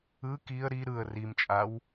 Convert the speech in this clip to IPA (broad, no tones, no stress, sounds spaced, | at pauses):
ɯ k i ə̯ ɾ i ɾ ɯ ə̯ r i m t͡ʃʼ a w